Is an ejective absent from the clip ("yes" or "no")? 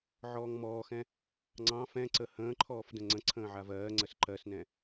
yes